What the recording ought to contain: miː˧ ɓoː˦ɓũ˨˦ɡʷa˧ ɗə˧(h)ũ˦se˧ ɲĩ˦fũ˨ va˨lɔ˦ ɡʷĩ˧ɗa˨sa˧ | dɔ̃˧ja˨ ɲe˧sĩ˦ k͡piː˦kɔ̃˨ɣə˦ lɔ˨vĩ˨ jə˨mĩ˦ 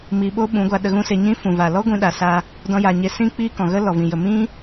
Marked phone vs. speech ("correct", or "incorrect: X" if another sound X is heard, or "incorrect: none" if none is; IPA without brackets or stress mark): incorrect: ɣ